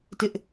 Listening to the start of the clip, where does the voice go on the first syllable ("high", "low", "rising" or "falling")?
high